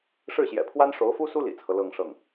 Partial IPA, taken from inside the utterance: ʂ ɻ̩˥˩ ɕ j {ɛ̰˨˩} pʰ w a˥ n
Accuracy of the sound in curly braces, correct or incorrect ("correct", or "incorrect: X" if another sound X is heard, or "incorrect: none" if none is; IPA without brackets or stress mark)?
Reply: correct